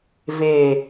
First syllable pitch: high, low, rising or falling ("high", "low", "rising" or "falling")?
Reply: low